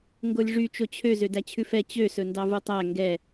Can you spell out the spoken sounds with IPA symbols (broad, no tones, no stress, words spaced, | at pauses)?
ŋɡolʲʐy t͡ʃot͡ɕʰø zødæt͡ɕʰʉfɛ t͡ɕø sɵndɑvutˤæ ŋɡɛ